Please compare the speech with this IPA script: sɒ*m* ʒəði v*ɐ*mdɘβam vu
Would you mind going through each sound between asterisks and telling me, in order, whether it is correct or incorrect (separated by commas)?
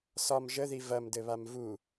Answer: correct, correct